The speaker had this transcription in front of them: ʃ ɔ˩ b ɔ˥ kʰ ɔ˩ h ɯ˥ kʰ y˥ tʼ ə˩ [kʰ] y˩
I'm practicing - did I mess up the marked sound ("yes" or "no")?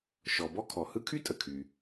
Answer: no